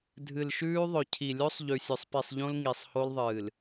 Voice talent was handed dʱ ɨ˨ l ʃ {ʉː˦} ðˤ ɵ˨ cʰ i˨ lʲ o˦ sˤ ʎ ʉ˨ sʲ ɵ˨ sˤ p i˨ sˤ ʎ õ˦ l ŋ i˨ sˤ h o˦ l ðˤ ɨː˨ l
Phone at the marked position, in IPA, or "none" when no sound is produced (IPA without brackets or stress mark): ʉː˦